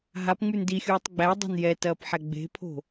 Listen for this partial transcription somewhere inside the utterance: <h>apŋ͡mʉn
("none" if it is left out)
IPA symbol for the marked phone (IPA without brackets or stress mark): ɦ